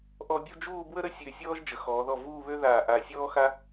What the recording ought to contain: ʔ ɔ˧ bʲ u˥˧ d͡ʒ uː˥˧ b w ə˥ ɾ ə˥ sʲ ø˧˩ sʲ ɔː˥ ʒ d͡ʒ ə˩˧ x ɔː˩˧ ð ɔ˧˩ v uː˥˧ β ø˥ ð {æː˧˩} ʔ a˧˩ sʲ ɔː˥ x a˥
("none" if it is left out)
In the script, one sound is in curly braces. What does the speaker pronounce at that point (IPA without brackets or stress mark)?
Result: aː˧˩